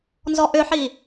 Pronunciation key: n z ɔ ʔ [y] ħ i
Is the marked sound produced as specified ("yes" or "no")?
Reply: no